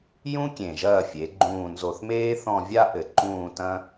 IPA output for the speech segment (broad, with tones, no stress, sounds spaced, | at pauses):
j ũ˥ kʲ ẽ˨˩ ʒ ɐː˦˨ fʲ e˩˧ ɡ͡ǃ ũː˨˩ n z o˨˩ θ m eː˥ θ ɔ̃˦˨ vʲ a˥ ʔ ɘ˨˩ ǃ ũː˦˨ t ɐ̃˥